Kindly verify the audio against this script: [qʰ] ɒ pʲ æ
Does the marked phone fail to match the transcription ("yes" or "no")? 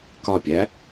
yes